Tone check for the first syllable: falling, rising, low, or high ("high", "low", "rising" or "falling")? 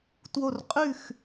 falling